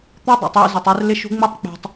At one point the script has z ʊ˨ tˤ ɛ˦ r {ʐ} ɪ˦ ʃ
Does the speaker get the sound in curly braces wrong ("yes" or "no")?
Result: yes